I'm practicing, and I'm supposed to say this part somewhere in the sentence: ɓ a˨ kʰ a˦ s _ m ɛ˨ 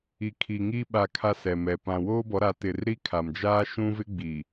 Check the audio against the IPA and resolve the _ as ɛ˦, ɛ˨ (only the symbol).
ɛ˨